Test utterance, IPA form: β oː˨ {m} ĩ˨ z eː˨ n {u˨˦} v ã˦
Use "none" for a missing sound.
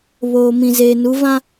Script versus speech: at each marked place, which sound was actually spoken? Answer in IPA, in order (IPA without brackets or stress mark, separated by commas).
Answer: m, u˨˦